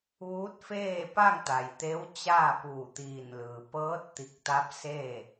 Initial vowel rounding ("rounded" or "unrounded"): rounded